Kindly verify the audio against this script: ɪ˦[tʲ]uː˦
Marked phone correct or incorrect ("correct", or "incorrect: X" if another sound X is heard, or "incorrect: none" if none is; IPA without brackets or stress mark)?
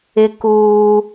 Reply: incorrect: k